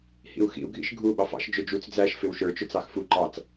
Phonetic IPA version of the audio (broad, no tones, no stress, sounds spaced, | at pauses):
h ḭ u̯ x ḭ u̯ ɡʱ ḭ ʃ ɡʱ u ɓ ɑ f ɑ̰ ʃ d͡ʒ ʊ d͡ʒ u t͡s d͡z æ ʃ f ɪ w ʃ ə˞ t͡ʃ ʊ t͡s ɑ x f u ǃ ɑ t͡s